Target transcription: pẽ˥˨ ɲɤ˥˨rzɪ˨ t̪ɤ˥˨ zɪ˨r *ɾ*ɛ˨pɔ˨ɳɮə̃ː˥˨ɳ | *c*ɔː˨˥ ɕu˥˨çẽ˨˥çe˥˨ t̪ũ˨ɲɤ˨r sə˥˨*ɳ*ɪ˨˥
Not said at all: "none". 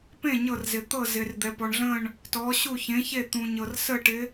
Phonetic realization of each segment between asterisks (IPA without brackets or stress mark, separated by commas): d̪, t, ʈ